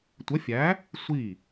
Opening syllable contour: rising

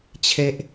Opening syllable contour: high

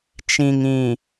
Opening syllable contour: low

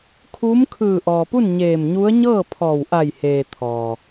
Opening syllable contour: rising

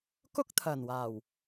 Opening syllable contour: high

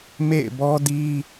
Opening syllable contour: falling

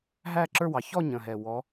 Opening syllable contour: falling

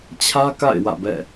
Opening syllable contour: high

